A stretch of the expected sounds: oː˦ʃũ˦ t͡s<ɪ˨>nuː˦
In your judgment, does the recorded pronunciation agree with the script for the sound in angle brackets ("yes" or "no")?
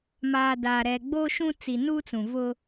no